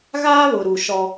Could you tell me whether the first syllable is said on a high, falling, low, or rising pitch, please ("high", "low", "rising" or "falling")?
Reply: high